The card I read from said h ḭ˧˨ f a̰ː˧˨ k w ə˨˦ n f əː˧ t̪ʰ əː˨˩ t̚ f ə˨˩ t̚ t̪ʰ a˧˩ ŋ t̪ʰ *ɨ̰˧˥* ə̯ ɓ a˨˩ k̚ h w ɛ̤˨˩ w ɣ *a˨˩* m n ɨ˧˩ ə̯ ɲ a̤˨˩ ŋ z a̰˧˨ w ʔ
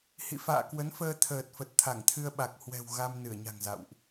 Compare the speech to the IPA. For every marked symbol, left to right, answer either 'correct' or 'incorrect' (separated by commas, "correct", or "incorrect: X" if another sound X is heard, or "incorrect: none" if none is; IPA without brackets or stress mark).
incorrect: ɨ˧, incorrect: a˧